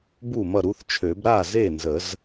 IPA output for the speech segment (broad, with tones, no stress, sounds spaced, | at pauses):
b u˥˩ m ʌ˥˩ ɾ u˦˥ θ t͡ʃʰ ø˨˩˦ b ɾ a˥˩ z e˥˩ n z ə˨˩˦ z